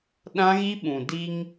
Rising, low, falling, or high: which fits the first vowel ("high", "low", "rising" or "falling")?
high